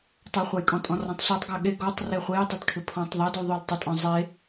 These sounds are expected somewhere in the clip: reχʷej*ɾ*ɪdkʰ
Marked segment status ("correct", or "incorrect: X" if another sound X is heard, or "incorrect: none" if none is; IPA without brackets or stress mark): incorrect: tˤ